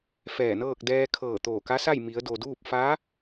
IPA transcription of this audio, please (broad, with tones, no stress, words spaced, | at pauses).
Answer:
fɛː˧˩nɤː˥˨k̚ dɛː˧kʰɤː˧˩ t̪oː˧˩ka˧˥sa˥˨j mi˩˧ə̯do˩duː˥˨p̚ fa˧˥